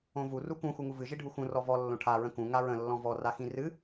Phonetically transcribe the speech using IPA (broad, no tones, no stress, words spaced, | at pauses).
õvu rukũ xuŋuvɨ ʒiɖʱuxũ rɔvɔ lːõʈʰa ɹə̃kũ ŋaɹə̃ lːɔ̃vɔ raxĩrɨ